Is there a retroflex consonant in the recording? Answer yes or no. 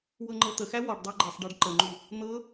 yes